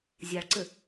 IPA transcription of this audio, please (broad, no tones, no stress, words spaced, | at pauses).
zʲaɭǀɘ